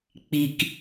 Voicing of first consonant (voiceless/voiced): voiceless